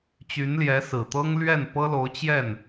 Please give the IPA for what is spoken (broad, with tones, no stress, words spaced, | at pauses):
t͡ɕy˧˥nljɛ˧˥ sɹ̩˨˩t̪ɤ˥ŋ lɥɛ˥˩npɤ˥lo˧˥ʊ̯ t͡ɕjɛ˥˩n